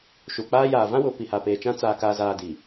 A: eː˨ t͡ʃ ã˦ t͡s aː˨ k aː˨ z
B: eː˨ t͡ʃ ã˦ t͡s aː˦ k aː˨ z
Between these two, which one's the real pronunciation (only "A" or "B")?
A